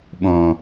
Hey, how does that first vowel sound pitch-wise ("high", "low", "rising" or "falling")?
low